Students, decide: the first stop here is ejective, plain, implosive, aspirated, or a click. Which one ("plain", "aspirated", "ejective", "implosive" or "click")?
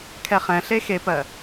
aspirated